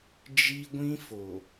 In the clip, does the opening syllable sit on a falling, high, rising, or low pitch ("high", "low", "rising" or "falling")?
high